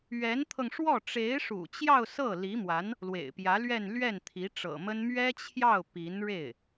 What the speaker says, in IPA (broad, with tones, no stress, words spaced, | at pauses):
ɥɛ˧˥nt̪ʰɤ˧ŋʂwɔ˥˩ ʈ͡ʂe˧˥ɪ̯ʂṵ˨˩t͡ɕjɑ˥˧ʊ̯ sɤ˥˩li˧˥mwa˧˥n | lwḛ˨˩ɪ̯pjä˧˥lɥɛ˥˧n lɥɛ˥˩nt̪ʰi˧˥ʈ͡ʂɤ̰˨˩mə˥n mɥɛ˥t͡ɕʰjɑ˥˩ʊ̯ pi˧˥nɻe˥˩ɪ̯